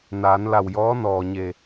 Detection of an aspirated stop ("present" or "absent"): absent